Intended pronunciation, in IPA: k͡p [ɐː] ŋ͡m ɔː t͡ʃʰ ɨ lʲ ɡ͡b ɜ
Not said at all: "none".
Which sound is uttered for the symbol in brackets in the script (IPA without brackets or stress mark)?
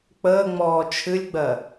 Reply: əː